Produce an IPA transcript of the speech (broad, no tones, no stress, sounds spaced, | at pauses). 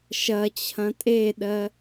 ʃ ɐ t͡ɕʰ ɐ̃ tʼ e ɗ ɜ